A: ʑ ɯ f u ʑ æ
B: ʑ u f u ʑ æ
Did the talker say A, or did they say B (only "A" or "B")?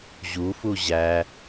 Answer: B